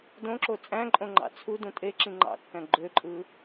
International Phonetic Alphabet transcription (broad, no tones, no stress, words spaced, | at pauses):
dõǁo t͡sʼæ̃ǃʼõŋ͡ǃɑ̰ t͡sʰudũ tʼeǁĩ ŋ͡ǃɑ̰kːæ̃ ɡ͡ǃøǃʼɯ